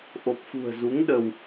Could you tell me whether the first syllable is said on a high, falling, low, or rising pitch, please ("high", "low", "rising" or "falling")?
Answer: low